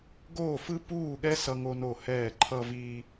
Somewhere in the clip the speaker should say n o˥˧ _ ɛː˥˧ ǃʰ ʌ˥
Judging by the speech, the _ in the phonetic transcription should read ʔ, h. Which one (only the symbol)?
h